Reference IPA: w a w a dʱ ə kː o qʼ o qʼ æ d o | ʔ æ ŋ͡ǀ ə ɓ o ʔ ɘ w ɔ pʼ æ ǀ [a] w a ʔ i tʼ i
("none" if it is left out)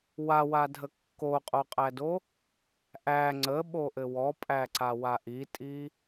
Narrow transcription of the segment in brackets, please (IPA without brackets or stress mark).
a